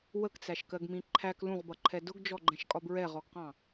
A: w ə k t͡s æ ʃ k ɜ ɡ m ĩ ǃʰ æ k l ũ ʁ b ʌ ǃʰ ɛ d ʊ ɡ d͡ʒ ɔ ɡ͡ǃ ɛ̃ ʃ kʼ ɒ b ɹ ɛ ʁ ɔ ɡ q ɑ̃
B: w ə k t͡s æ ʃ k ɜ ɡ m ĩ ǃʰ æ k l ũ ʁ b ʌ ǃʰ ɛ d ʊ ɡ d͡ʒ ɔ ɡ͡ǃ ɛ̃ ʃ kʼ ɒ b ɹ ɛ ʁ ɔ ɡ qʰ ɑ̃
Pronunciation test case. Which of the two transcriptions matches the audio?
A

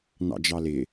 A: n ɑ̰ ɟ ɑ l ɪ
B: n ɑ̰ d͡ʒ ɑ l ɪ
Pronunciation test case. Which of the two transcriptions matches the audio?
B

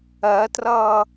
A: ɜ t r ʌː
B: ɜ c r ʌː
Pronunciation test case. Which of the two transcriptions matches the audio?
A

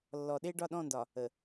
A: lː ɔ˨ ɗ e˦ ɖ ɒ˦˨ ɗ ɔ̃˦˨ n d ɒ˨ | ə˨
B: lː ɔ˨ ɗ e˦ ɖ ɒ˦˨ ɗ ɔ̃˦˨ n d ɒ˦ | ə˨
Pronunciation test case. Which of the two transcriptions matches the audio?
A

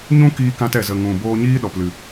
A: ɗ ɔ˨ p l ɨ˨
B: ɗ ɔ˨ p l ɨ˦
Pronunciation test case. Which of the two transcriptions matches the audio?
A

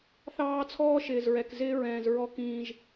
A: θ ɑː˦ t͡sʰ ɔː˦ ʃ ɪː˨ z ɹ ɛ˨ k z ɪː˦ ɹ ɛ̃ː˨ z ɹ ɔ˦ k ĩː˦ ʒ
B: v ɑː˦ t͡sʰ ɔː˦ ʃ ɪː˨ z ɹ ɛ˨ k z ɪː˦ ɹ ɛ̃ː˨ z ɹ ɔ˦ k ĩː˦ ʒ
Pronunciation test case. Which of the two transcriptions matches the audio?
A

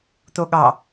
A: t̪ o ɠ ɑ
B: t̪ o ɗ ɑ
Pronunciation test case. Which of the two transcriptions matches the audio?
A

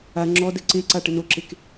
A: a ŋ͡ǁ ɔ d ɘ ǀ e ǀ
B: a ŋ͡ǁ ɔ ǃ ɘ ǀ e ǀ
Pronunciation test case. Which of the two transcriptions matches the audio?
A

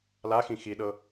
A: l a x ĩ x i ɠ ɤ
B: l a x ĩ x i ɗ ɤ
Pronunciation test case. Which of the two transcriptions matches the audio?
B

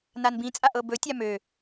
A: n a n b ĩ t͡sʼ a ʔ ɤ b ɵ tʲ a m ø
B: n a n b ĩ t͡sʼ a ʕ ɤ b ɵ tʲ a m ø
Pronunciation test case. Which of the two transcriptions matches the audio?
A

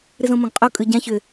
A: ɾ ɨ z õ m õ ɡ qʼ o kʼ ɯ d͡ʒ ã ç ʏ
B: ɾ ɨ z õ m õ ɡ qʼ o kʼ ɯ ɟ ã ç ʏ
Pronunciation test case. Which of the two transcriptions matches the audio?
B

